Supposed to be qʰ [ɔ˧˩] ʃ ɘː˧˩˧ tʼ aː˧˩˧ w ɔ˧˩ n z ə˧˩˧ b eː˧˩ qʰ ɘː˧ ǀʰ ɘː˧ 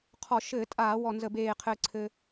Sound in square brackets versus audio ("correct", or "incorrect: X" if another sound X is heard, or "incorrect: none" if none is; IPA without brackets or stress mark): incorrect: ɔ˧˩˧